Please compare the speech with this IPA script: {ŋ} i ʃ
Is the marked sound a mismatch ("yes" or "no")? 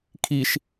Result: yes